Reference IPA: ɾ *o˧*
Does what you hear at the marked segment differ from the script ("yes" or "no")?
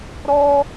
yes